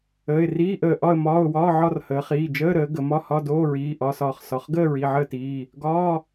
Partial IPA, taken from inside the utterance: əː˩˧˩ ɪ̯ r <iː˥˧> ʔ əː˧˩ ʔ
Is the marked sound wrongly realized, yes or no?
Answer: yes